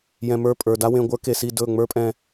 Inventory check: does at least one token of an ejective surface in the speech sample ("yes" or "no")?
yes